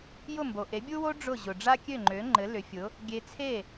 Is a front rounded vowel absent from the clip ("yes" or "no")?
no